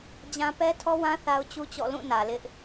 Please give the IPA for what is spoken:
d͡ʑ ã˦ p ɛ˦ tʰ ɔ˦ w ã˦ θ a˦ ʊ̯ t͡ɕ u˦ t͡ɕ ɔ̰˦˨ l ũ˦˨ n ä˨ l ɪ˦ ʔ

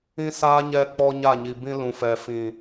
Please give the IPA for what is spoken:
ĩ˦ s aː˦ ɲ ɛ˦ k͡p ɔ˦ ɲ a˦˨ ɲ i˨ b ĩ˦ l ũ˨ f ɛ˨ f ĩ˨

